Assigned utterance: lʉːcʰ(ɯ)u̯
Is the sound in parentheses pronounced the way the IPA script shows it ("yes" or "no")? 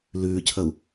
no